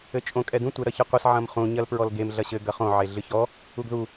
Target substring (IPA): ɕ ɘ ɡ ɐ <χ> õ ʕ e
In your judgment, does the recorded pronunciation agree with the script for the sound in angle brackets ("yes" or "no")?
yes